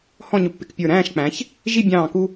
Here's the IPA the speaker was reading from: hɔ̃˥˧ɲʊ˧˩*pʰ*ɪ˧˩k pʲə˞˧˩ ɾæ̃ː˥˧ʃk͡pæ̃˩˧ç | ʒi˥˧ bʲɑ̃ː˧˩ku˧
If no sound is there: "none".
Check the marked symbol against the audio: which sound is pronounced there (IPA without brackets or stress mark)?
pː